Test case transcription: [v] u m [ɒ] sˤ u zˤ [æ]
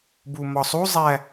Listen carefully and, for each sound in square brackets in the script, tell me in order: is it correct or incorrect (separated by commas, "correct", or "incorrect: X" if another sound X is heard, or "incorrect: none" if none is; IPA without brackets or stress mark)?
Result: incorrect: b, correct, correct